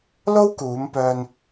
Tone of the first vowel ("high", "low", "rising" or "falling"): high